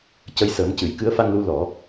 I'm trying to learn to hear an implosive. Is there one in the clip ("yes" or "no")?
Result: no